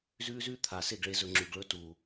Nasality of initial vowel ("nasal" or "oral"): oral